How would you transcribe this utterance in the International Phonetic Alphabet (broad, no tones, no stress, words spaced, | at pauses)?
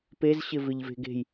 pezɕɪ vɪʎve̤ɡe̤j